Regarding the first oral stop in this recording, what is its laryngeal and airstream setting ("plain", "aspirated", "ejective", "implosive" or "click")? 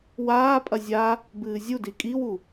ejective